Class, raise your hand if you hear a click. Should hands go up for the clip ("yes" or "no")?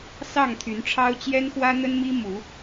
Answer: no